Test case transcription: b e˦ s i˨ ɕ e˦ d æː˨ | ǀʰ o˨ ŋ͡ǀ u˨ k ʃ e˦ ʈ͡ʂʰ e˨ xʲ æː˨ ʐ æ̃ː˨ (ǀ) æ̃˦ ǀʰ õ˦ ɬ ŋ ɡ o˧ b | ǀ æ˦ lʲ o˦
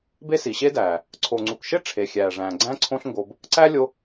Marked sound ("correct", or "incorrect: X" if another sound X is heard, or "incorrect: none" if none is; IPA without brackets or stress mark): incorrect: ɡ͡ǀ